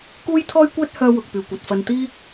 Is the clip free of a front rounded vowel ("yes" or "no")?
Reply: no